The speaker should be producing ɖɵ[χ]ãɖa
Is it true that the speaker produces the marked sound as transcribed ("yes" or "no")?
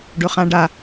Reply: yes